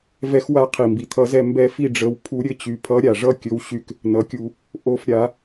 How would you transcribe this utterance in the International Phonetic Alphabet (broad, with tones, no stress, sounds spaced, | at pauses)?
v ɛ˧˥ x w a˧˥ qʰ i˩ m b i˩ t̪ʰ ʌ˧˩˧ z ɛ˦˨ m b ɛ˧˥ f i˦˨ ɖ͡ʐ ə˩˥ w pʰ u˧˥ ɾʲ ɘ˦˨ t͡ɕ y˩ pʰ ʌ˧˥ ɾʲ a˩ ʐ ʌ˦˨ kʲ ɵ˩˥ w ɕ y˩ k | n ʌ˩˥ kʲ u˧˩˧ | ʔ o˦˨ f ɾʲ a˧˩˧